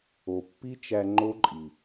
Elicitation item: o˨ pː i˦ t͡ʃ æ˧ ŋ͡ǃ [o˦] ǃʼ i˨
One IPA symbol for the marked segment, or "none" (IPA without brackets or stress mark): o˦